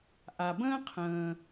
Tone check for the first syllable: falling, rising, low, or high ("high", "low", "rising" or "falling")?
low